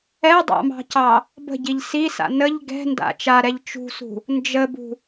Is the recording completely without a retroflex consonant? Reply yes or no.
yes